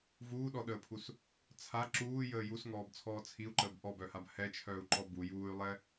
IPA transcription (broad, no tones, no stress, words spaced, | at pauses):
vuːɗɔɗəːpʰus | t͡sʰa ǁuːjəː jusŋɔːbt͡sʰɔː t͡sʰiu̯ǃəːb ʔɔbœhab hɛt͡ʃʰœːu̯ǃɔ bu juːy̯lˠɛ